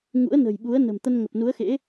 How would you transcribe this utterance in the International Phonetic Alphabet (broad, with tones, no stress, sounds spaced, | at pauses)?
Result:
ŋ ṵ˧˥ ə̯ n ə̤˨˩ j ɓ u˨˦ ə̯ n ə̤˨˩ m t̪ ə˧ n ŋ ə˨˩ p̚ n u˨˦ ə̯ x ḛ˧˥